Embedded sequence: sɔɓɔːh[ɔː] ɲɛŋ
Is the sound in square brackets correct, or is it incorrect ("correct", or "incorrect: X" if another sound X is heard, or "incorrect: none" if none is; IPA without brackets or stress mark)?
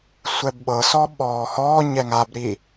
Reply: correct